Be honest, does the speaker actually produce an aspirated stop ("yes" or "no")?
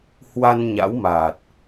no